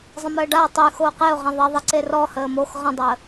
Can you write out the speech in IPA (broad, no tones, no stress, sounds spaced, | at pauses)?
zˤ ə̃ m əː ɖ a ʊ̯ tˤ y x oː q e ʊ̯ ʁ ẽ ðˤ e ðˤ i ǀ e r ɔ h əː m o x ʁ ə̃ dˤ əː